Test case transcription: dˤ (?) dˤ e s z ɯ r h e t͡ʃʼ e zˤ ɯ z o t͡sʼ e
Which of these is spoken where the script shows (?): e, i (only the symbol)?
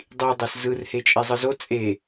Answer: i